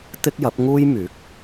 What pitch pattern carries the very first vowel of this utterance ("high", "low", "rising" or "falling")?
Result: high